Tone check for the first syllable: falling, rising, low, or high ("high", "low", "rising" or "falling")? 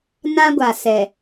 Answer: high